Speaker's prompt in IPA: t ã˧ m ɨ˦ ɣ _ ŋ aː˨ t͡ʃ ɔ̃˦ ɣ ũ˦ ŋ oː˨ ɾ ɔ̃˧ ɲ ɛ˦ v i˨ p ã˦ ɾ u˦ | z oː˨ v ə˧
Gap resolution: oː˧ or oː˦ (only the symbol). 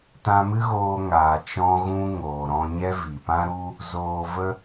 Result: oː˧